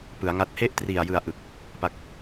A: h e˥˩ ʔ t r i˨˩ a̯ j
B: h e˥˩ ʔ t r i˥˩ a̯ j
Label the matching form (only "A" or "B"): A